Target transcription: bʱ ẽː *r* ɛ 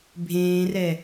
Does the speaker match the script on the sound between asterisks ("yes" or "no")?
yes